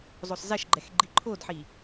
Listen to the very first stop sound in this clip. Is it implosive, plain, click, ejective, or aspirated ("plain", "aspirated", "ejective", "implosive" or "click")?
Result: click